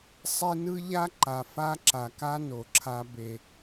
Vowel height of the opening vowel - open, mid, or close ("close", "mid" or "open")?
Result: mid